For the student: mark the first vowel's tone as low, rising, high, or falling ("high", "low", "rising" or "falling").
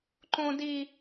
high